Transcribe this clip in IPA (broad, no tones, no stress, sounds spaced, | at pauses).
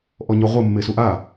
ʔ ɔ ɲ ɔ ʁʷ ɘ mː e s u ʔ a